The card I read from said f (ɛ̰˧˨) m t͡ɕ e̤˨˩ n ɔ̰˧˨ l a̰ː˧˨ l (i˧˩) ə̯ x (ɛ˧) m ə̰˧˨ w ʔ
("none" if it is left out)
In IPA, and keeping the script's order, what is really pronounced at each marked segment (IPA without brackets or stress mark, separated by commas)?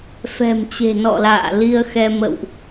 ɛ̤˨˩, i˧, ɛ˧